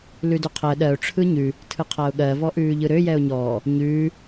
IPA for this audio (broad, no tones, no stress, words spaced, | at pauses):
lʉdøqʰɜ ɗɜʊ̯ ʈ͡ʂʰɯɲʉ | tʰɯqʰaʊ̯ɠɜ vɔʔʉːʎɯɾø jɛʊ̯ɲɔː | ɲʉː